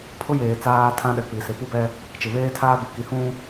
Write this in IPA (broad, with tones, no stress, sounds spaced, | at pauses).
pʰ ʊ˦ j eː˨ t͡s aː˦ tʰ ã˦ ɗ ɛ˨ k͡p i˨ s ɪ˨ p u˦ b ɛ˦ | t͡ʃ ɪ˨ β eː˦ tʰ aː˦ b i˨ k i˨ h ũ˦